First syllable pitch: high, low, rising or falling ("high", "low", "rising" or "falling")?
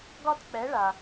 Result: high